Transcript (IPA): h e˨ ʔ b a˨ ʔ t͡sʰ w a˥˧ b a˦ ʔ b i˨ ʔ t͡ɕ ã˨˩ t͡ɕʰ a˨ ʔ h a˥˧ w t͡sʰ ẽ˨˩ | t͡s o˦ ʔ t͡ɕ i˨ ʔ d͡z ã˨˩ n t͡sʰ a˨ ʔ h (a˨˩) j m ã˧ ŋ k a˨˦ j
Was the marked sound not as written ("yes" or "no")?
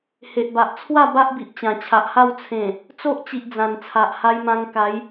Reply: yes